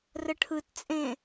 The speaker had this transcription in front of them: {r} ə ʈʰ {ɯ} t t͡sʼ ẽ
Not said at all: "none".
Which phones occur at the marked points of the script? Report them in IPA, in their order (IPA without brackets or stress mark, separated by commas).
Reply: r, ɯ